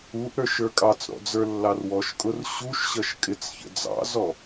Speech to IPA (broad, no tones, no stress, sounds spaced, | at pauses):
u ʔ ɾ ə˞ ʃ ə˞ kʼ ɑ t͡s ɾ ɔ̰ d͡z ə˞ lː ɑ r w ɔ ʃ kʼ ʊ r ɕ u ʃ ɕ ʌ ʃ kʼ ɪ t͡s ç ə̰ d͡z ɑ̰ z ɔ